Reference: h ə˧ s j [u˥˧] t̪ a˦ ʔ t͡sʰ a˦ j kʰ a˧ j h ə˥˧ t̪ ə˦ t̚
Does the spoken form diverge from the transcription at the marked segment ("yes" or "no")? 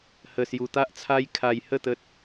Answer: yes